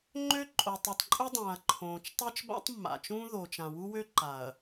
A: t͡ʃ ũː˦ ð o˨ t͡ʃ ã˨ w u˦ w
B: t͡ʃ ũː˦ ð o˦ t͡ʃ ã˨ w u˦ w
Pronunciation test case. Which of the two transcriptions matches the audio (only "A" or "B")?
A